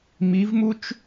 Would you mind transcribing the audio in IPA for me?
m i˧˥ v m u˥ t͡ʃ

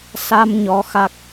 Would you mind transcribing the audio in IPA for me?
s a˧ m ɲ ɔ˨˦ x a˦˥ k̚

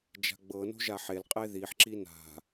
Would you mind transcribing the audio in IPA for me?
d͡ʒ a̤ ɡ͡b ɤ n o̤ ʒ a ħ e l qʼ e ð i ħ ǁ i n a̤

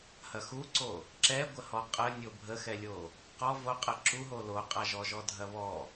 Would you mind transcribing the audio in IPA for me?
h ɐ x u ǀ o | ǁ ɛ ɡʷ ə h ɔ qʼ ə nʲ o bʱ ə x ɛ lʲ o | q ɔ v o qʼ ə ǁ u ɦ o l o qʼ a ʒ ɔ ʒ ɔ dʱ ɐ β ɔ

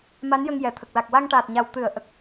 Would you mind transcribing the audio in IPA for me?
m a˧˥ n j ə˧ ŋ j ɛ˨˩ t̪ʰ ə˨˩ k̚ l a˨˩ k̚ w a˧ ŋ ʈ aː˨˩ t̚ ɲ a˨˩ w t̪ ɨ˨˩˦ ə̯ ʔ ə˨˩ k̚

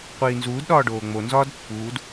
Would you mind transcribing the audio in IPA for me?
qʷ iː n z uː d ɗ ɒː ɖ oː ŋ͡m o n z ɒː d pː uː d

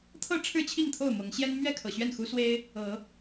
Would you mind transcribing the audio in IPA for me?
t̪ʰ ɤ˥˨ ʈ͡ʂʰ ɻ̩˥˨ t͡ɕʰ i˥˨ ŋ t̪ʰ o˥˨ ʊ̯ m ɤ˨˦ ŋ ɕ j ɛ˦ n m ɥ ɛ˥˨ kʰ ɤ˨˩ ɕ ɥ ɛ˥˨ n x u˦ s w e˦ ɪ̯ | ɤ˨˦

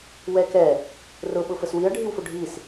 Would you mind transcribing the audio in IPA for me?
w ɛ k ɛ | r ʊ ɓ ʊ f ə s w i ɐ̯ ɖʱ i w f ʊ ɖʱ i s

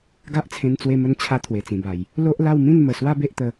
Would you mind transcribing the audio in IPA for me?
ɡ a˦ ʔ t͡sʰ ẽ˧ n t͡s w e˧ m ə˧ n t͡ɕʰ a˧ t̪ʰ w e˨˩ t͡s ĩ˨˩ b a˨˩ j | l o˦ ʔ l a˥˧ w m ĩ˥˧ n m ə˨˩ s w a˦ b e˦ ʔ t̪ ə˧

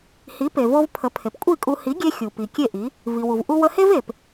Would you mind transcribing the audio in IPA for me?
h i˩˥ p e˩ v o˧ v pʰ ə˩˥ pʰ e˩ p kʷʼ i˥˩ kʼ u˧ h i˩˥ ɡʲ e˧ xʲ u˩ p i˩ kʲ e˥˩ ʔ i˩˥ | v i˩ w u˩ v ʔ u˧ w ə˧ h e˥ v e˩ p

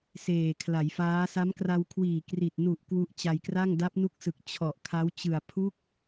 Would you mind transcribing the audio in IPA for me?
s eː˨˩ kʰ l a˩˦ j f aː˦˥ s a˦˥ m k r a˧ w kʰ w iː˨˩ k r i˨˩ t̚ n u˨˩ ʔ k w u˦˥ ʔ t͡ɕ a˧ j k r a˥˩ ŋ d a˦˥ p̚ n u˦˥ k̚ s ɯ˨˩ k̚ t͡ɕʰ ɔ˨˩ ʔ kʰ a˦˥ w t͡ɕ ɯ˨˩ a̯ pʰ u˦˥ k̚

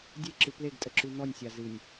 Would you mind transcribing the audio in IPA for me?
dʲ e ǁ ɨ p l e ɡ tʼ ə ǁ ʉ n̪ ɔ nʲ sʲ a z ɨ nʲ

